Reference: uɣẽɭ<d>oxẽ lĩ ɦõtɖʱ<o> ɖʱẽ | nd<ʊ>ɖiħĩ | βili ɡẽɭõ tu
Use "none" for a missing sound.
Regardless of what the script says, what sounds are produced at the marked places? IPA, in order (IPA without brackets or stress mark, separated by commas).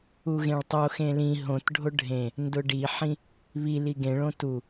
tˤ, o, ʊ